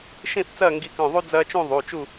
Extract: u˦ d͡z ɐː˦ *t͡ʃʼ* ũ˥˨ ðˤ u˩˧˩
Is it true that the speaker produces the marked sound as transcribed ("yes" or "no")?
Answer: no